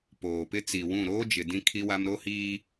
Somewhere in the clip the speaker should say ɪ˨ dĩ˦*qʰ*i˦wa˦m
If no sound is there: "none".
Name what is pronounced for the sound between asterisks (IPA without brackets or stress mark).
kʰ